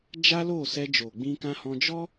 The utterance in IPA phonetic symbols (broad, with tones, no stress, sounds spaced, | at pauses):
d͡ʒ a˦ l o˦˨ s ɛ˧ d͡ʒ o˨ ɡ͡b ĩ˧ k ã˧ h ɔ̃˧ d͡ʒ ɔ˦